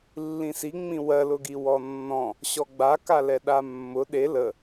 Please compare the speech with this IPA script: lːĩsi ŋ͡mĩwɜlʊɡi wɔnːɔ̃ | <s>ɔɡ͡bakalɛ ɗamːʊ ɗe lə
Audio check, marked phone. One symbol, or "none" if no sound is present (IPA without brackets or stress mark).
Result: ɕ